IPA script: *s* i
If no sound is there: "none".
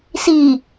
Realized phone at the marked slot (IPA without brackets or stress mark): s